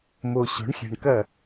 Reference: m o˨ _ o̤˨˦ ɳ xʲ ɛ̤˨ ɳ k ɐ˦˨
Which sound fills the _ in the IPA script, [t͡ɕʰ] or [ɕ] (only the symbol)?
ɕ